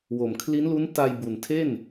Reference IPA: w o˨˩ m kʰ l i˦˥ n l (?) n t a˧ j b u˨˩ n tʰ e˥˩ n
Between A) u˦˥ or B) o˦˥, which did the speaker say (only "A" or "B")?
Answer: A